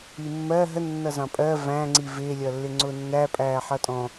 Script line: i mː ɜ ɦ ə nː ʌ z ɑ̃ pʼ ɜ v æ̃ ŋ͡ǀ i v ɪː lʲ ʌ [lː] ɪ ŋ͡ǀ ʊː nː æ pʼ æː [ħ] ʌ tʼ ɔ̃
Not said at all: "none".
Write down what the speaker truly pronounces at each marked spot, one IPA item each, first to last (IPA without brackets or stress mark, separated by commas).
lː, ħ